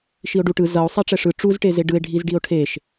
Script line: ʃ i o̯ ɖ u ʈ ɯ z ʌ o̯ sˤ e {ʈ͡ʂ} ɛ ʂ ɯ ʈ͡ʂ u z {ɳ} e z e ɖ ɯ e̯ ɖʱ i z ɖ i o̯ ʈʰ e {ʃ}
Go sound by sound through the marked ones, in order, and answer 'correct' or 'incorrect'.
correct, incorrect: ʈ, correct

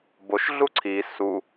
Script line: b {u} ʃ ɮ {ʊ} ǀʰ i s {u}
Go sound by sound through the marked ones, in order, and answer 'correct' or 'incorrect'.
incorrect: o, incorrect: u, correct

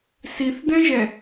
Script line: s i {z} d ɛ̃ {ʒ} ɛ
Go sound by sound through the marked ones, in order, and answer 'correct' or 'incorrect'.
incorrect: θ, correct

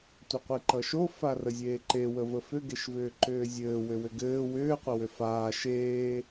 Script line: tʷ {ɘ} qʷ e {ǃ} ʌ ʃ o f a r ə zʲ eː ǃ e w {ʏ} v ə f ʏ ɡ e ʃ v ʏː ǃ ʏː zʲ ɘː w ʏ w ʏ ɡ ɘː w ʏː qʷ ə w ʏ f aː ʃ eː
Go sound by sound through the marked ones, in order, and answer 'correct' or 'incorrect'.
correct, correct, incorrect: ə

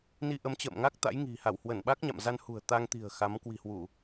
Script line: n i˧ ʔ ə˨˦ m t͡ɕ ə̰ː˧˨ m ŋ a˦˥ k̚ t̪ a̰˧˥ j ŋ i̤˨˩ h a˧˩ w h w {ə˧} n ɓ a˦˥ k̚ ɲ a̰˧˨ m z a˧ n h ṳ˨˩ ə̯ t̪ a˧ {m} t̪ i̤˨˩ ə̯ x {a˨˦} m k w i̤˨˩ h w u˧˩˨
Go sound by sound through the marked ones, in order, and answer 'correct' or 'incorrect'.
incorrect: ə˧˩, incorrect: ŋ, correct

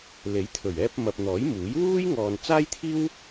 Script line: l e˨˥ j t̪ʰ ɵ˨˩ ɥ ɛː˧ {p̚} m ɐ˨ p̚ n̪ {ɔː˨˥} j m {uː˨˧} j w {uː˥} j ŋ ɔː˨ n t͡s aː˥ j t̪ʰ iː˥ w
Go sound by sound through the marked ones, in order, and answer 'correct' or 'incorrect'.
correct, correct, incorrect: uː˨˥, correct

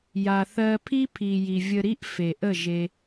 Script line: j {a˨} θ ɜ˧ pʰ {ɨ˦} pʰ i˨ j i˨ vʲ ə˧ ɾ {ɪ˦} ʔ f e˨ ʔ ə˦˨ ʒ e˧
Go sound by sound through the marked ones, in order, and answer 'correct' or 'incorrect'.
correct, incorrect: i˦, incorrect: i˦

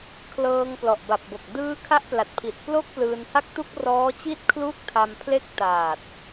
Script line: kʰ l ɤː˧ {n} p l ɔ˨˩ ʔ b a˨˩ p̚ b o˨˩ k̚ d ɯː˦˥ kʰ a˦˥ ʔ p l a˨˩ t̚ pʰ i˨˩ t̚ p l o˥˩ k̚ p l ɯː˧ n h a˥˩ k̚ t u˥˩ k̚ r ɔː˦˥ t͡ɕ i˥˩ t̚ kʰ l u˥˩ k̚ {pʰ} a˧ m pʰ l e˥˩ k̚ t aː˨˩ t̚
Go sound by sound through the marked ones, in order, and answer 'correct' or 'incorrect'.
incorrect: ŋ, incorrect: tʰ

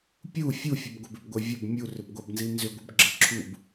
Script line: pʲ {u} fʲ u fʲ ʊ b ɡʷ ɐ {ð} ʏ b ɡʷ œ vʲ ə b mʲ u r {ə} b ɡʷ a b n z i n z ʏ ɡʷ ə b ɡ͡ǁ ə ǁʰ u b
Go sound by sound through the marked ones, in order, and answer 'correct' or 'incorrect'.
correct, incorrect: b, incorrect: ʏ

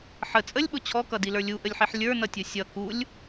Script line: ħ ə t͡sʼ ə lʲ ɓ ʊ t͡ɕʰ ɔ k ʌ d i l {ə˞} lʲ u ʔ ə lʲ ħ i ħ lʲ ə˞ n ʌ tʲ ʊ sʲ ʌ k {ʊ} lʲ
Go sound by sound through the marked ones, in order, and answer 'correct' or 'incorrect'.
correct, incorrect: u

